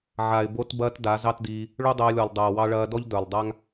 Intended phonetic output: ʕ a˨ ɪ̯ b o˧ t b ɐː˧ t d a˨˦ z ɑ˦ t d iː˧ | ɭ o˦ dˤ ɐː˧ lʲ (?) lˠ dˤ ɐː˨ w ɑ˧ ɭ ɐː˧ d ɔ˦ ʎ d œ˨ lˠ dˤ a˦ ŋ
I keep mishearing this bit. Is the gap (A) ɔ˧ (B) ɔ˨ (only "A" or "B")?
B